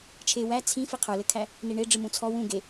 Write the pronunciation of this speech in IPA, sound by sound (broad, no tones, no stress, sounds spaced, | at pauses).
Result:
t͡ʃʰ e w æ t͡sʰ ĩ f i qʰ ə˞ l ɘ kʰ æ | n i ɳ e ɖ͡ʐ ɨ m ũ t͡sʰ ɔ w ũ ɡ e